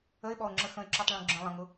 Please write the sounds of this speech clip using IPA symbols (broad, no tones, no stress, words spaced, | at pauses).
əɪ̯ɓɔʊ̯ŋ͡ǁə xə̃ɪ̯ǁɔtˤɭũ ɡ͡ǁə̃ lˠə̃ŋʊ